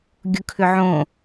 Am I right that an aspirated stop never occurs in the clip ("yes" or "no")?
no